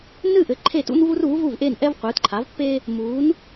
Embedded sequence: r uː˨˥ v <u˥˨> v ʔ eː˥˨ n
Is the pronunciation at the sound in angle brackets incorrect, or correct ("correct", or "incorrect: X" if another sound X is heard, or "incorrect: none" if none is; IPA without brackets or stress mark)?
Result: correct